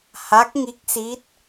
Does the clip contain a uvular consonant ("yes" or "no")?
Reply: no